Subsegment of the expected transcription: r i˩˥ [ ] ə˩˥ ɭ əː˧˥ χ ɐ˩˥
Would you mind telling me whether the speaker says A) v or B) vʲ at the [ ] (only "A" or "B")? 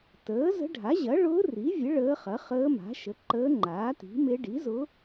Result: B